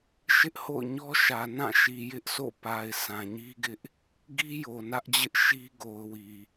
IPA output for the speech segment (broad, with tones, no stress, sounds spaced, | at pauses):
ʃ ɪ˦ ʔ h o̰˦˨ ʊ̯ ɲ ɔ˦ ʃ ä˨ n ã˦˨ ʃ i˨ j ɪ˦ ʔ s o̰˦˨ p a˨ ɪ̯ sʰ ã˨ ɲ i˦ ɡ ɪ˦ ʔ | ɡ i˦ j o˨ n ä˦ ʔ d͡ʑ ɪ˦ ʔ ʃ i˦ ɡ o˨ ʊ̯ w i˨